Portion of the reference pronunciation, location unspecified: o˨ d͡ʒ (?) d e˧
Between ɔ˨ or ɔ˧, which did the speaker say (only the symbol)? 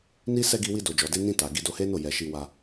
ɔ˨